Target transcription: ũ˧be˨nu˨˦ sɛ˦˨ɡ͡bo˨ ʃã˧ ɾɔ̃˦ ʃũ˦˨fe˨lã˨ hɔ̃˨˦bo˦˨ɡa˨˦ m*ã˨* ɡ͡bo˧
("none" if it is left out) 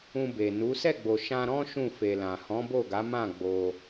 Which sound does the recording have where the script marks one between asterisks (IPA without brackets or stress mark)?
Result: ã˦˨